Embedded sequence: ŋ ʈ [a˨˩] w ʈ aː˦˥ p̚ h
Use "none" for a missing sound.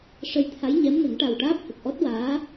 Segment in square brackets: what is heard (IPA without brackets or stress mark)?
a˨˩